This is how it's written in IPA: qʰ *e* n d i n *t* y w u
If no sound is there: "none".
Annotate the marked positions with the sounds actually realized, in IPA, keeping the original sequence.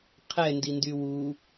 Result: ɛ, d

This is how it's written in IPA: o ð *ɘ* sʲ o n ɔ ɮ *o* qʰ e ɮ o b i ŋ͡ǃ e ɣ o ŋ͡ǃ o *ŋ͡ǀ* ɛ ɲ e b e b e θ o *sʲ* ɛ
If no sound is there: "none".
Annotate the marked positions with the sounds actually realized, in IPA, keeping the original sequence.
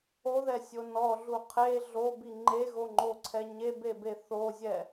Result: ɛ, u, ǀʰ, zʲ

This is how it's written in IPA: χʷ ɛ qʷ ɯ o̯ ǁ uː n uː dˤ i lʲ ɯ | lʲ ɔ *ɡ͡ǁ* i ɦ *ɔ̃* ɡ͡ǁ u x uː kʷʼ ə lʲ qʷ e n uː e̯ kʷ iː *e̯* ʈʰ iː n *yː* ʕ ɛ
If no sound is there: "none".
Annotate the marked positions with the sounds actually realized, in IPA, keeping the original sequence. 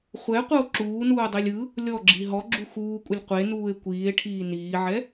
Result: ɡ͡ǁ, ɔ, e̯, iː

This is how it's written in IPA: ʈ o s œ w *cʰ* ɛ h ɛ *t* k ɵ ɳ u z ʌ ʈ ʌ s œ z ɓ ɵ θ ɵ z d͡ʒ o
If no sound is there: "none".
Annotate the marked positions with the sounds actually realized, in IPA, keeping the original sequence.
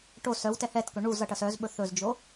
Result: t, t

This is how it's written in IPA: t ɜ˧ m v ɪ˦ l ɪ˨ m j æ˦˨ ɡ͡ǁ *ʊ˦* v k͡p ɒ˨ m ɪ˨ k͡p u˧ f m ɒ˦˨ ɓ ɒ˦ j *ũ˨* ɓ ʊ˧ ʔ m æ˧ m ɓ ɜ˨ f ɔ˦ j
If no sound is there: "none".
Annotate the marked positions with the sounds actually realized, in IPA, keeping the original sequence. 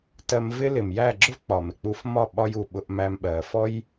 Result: ʊ˦, u˨

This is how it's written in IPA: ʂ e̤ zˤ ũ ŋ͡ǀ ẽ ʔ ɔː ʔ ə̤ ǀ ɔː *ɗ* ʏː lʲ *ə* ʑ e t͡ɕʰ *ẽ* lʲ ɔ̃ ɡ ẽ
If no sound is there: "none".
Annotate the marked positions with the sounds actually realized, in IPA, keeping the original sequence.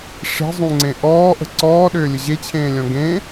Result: ɗ, ə, ẽː

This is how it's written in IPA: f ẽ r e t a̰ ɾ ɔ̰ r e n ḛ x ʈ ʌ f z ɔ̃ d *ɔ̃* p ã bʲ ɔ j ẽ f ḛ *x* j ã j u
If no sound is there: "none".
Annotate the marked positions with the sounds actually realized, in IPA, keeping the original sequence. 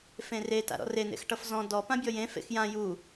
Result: ɔ, x

